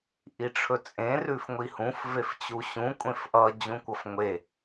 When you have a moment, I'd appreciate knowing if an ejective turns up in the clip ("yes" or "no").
yes